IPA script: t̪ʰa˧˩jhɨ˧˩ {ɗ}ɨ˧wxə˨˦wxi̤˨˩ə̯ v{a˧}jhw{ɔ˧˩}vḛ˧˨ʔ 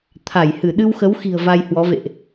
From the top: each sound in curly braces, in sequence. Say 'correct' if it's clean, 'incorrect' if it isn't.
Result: correct, correct, incorrect: ɔ˨˦

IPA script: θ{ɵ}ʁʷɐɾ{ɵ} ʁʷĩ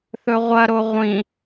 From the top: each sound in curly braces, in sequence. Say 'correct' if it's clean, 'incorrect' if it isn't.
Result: correct, incorrect: o

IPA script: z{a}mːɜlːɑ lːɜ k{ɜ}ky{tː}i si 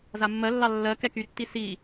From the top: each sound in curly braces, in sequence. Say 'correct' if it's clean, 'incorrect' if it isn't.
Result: correct, incorrect: ɛ, correct

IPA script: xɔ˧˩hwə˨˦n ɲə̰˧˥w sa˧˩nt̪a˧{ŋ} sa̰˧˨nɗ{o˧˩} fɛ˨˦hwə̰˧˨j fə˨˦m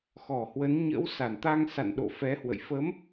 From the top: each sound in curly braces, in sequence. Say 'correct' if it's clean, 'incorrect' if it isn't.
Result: correct, incorrect: o̰˧˨

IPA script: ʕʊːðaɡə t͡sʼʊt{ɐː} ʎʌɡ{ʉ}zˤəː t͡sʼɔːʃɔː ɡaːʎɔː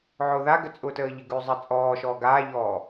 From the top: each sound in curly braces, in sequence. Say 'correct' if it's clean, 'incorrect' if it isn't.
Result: incorrect: əː, correct

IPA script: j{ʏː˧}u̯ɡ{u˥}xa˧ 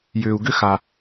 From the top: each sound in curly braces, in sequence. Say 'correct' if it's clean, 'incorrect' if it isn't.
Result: correct, incorrect: ʏ˥

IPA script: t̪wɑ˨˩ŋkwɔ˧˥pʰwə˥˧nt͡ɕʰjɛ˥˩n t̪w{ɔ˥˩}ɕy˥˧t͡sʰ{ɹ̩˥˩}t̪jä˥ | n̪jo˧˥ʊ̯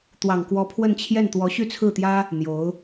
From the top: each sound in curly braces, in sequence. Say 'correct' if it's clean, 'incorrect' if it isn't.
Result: incorrect: ɔ˧˥, correct

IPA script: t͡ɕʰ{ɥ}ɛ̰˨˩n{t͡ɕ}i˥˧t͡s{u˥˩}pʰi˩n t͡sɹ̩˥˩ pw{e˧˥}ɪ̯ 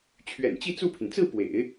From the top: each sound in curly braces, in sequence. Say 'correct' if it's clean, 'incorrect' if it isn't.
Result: correct, correct, correct, incorrect: ḛ˨˩˦

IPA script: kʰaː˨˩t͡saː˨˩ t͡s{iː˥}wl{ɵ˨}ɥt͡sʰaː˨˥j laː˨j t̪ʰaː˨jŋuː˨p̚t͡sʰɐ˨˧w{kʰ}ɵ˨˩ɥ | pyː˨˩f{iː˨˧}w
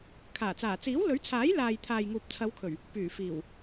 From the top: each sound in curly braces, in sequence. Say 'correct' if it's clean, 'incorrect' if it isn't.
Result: incorrect: iː˨˥, incorrect: ɵ˨˥, correct, incorrect: iː˨˩

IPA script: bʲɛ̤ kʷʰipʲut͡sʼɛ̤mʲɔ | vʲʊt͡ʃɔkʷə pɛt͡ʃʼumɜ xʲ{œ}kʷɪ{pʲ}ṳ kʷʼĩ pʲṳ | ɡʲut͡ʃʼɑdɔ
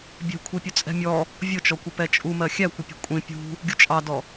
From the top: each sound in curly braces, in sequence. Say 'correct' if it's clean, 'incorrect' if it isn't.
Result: incorrect: æ, correct

